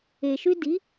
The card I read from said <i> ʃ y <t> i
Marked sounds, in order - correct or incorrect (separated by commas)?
incorrect, incorrect